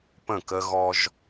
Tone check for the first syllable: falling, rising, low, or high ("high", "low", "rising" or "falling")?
falling